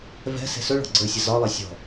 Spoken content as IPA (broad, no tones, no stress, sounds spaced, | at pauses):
v ɛ̤ s e̤ s ɵ ɭ ɔ̤ ɡ͡ǀ ə˞ sʲ ɐ z ɒ lˠ ɛ sʲ ɔ̤